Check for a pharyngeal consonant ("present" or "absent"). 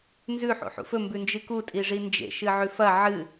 present